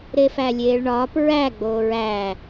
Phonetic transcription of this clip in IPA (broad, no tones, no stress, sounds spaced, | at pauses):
ɾ e f æ lʲ eː ɭ ɳ ɒː p ɹ æ ɡ͡b oː ɹ æː